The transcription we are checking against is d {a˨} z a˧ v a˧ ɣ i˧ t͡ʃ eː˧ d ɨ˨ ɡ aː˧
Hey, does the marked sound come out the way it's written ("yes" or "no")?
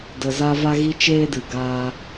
no